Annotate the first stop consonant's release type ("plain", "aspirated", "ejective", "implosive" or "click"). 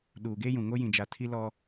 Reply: implosive